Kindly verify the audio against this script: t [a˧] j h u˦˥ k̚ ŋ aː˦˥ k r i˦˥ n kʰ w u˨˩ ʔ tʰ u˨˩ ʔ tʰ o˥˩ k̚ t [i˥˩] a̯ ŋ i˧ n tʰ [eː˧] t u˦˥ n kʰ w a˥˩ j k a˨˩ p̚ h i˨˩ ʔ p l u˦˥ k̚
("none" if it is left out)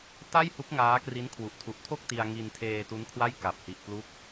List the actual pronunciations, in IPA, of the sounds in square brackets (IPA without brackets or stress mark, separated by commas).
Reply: a˥˩, i˧, eː˧